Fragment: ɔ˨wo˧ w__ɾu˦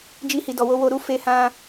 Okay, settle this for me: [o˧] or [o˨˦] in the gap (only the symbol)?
o˧